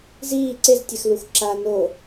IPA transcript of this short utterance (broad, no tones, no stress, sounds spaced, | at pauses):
z iː ǀ e z tʲ ɛ x l u x ǁ a n o